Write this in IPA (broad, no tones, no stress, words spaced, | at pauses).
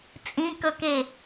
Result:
t͡sʼĩkɵke